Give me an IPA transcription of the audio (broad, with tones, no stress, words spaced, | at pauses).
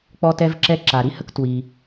k͡pɔ˥tɛ˥vǁɛ˥ ǁa˩ɾi˥hə˥k twi˩